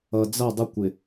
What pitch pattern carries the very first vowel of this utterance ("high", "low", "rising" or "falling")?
low